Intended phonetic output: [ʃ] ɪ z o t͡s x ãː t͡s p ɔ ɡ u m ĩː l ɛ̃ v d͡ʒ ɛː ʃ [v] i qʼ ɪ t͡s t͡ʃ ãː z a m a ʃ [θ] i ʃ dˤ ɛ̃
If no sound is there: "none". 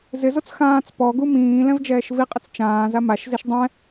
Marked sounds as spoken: z, v, z

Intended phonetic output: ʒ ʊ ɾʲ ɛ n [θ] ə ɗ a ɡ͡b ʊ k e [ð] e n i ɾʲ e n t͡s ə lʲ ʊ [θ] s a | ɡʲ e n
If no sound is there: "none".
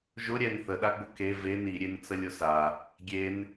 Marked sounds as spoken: θ, v, none

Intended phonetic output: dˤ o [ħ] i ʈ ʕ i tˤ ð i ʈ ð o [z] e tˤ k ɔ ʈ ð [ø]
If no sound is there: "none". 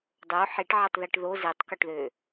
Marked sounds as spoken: ħ, z, ø

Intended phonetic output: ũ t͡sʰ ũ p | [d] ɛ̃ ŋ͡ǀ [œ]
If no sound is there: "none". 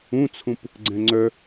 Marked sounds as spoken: ɡ͡ǀ, œ

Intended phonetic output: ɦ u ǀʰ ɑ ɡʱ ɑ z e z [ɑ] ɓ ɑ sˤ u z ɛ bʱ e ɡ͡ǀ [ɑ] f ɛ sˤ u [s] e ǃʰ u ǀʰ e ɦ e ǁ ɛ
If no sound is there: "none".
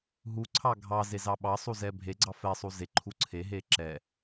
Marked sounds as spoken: ɑ, ɑ, z

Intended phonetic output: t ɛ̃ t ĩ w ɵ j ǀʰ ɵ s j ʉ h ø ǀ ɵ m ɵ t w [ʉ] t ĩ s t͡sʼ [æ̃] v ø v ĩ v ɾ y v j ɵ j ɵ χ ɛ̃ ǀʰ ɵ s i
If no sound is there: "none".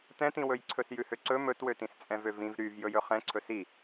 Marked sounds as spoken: ø, ɛ̃

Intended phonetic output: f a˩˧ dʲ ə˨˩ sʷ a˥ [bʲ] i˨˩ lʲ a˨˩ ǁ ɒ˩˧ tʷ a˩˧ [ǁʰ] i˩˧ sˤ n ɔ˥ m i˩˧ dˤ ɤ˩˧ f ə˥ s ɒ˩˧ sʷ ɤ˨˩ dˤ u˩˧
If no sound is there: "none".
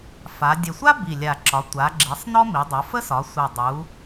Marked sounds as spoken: b, ɡ͡ǁ

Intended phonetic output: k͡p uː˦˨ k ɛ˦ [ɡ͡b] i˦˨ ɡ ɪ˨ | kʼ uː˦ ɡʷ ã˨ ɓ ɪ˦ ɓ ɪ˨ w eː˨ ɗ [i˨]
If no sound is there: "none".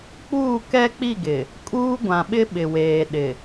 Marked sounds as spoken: k͡p, ɪ˨

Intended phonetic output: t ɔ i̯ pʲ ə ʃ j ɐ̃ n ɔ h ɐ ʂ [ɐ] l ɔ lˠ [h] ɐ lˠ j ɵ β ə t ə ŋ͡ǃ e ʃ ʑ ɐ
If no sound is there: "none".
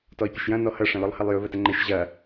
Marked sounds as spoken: ɐ̃, h

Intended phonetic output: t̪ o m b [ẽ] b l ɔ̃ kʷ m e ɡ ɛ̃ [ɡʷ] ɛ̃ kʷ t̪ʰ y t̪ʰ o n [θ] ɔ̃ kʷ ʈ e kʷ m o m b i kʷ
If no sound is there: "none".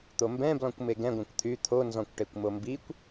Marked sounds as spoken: ɛ̃, ɡʷ, z

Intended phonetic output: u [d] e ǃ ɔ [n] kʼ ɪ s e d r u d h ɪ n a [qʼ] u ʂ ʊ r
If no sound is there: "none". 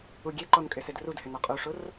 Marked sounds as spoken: ɡʲ, n, qʼ

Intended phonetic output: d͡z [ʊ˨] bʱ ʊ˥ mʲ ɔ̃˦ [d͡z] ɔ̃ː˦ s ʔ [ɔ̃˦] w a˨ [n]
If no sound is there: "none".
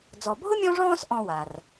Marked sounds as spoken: ɔ˨, ʐ, ɔ̃˦, r

